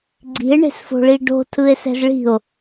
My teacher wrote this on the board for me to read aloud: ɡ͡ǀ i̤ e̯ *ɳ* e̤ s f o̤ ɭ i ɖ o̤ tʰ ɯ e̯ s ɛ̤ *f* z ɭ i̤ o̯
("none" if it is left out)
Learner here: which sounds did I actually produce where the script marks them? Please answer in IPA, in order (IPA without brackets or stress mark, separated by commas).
ɳ, none